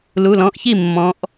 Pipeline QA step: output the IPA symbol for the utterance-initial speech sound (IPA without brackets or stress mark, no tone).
l